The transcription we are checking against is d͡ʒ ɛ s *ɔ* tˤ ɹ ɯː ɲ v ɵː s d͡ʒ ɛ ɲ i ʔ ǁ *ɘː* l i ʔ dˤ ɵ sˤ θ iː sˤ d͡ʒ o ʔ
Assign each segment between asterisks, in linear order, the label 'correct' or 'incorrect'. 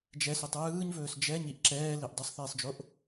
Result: incorrect, incorrect

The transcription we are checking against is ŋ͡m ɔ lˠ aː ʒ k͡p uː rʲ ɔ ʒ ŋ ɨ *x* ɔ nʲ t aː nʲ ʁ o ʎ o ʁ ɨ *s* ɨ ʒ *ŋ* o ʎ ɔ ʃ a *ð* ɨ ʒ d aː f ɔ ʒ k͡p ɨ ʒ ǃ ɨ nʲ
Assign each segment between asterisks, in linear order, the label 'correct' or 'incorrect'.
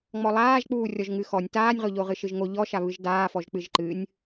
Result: correct, incorrect, correct, incorrect

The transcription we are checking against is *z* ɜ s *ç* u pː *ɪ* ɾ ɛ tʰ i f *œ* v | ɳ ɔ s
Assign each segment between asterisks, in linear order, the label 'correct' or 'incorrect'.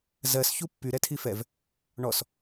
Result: correct, correct, incorrect, incorrect

